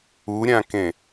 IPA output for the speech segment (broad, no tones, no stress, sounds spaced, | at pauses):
u ɾʲ ã k ẽ